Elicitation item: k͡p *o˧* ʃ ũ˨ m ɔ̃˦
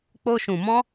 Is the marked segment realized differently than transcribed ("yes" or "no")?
no